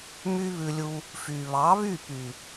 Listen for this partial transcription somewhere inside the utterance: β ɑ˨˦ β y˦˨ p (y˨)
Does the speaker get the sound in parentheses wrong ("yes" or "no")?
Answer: no